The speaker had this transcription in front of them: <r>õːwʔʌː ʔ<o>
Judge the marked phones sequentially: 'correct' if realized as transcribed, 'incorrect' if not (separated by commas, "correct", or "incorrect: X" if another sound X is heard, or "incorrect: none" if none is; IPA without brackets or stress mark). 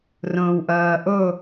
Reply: correct, correct